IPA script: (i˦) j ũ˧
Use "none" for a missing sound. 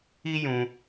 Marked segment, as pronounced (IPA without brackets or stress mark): i˦